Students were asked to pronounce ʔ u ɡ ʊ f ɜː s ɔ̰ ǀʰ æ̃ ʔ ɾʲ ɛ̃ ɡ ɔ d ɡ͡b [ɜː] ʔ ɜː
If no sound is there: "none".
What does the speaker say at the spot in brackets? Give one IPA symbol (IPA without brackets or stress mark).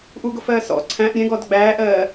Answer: æː